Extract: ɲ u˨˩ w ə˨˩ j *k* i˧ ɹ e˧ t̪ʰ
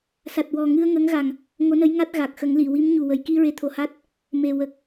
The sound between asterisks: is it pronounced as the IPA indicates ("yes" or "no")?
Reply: yes